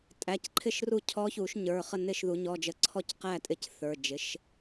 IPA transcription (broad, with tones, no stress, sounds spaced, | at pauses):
tʼ æ˩˧˩ c ǃʰ ɪ˥˨ ʃ r u˥˨ cʰ ɔ˧˥ ç u˨˩˦ ʃ ɲ ə˞˩˧˩ χ ə˥˨ n ɪ˥˨ ʃ ð u˨˩˦ ɲ ɔ˧˥˧ d͡ʒ ə˥˨ ǀʰ ɔ˥˨ c q æ˥˨ tʼ ɪ˧˥ c θ ə˞˩˧˩ d͡ʒ ɪ˩˥ ʃ